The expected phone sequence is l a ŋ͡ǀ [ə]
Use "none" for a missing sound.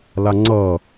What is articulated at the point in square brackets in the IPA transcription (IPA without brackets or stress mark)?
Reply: ʌ